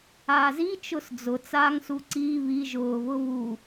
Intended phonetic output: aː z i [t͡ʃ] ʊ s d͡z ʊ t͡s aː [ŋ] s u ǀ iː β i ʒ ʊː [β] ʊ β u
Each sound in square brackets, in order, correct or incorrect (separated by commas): correct, correct, correct